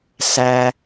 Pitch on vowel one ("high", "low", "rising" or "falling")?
low